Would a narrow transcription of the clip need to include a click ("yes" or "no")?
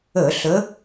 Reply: no